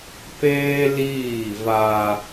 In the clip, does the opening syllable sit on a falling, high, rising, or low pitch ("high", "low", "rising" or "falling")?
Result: high